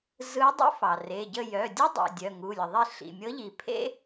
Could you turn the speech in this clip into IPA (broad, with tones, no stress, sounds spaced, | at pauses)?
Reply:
z ɯ˧˥ dˤ ḭ˥ f ɑ˩ r e˩˧˩ ɟ ə˥˨ j œ˩˧˩ dʲ u˥ dˤ ḛ˩˧˩ dʲ œ˩˧˩ ŋ u˩˧˩ lʲ ə˩ ðˤ e˥˨ ɬ ḭ˩˧˩ mʲ ɤ˧˥ ʎ i˩ pʰ ḛ˥